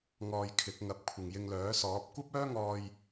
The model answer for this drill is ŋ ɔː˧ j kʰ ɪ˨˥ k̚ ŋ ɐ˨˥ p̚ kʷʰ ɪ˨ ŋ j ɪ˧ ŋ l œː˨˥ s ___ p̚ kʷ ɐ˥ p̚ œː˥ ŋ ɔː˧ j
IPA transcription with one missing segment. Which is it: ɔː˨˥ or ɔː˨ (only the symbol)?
ɔː˨˥